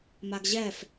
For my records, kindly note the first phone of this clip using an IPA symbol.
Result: m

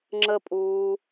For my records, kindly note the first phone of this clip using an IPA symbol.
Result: ŋ͡ǁ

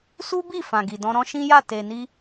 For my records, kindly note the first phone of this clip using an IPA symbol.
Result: s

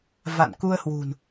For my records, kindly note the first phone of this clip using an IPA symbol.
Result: v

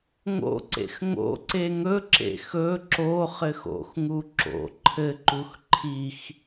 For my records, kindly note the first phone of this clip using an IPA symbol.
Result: ŋ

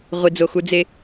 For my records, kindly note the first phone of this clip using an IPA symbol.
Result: ʁʷ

